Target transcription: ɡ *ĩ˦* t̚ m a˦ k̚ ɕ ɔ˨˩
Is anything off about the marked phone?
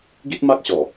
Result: yes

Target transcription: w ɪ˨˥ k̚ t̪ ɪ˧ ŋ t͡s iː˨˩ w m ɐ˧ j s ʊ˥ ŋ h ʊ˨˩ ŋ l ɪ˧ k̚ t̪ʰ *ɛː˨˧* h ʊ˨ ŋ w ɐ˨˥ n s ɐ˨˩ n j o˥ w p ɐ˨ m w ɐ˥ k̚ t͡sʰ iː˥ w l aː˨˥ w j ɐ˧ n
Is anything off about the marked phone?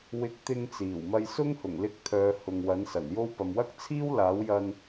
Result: yes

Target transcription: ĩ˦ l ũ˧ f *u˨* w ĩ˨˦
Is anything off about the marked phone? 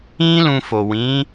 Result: yes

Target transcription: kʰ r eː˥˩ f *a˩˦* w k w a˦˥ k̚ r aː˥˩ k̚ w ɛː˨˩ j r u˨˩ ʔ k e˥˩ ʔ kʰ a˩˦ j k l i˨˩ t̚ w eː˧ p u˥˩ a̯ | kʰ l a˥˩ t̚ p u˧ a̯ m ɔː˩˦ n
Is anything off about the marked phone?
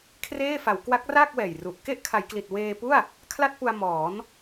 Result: no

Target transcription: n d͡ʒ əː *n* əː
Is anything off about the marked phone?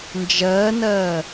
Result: no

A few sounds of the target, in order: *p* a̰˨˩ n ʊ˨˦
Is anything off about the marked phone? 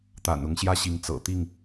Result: yes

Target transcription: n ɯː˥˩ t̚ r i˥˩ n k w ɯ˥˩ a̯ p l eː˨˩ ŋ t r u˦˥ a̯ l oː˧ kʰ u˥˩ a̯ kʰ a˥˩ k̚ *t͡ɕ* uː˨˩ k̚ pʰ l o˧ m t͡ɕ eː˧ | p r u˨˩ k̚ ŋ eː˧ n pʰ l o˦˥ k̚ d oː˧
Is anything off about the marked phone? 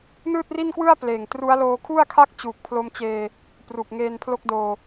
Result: no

